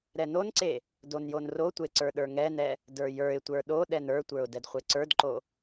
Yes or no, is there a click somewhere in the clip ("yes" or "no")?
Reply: yes